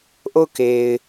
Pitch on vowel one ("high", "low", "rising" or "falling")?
falling